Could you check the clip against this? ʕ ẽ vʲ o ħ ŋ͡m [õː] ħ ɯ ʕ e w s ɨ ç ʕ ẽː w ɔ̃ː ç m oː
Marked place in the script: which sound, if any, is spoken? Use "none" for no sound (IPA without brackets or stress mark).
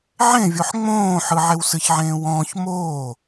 õː